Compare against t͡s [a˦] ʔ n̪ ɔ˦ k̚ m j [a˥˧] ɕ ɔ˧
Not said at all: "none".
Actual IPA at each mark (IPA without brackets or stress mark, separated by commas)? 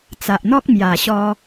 a˨, a˨˩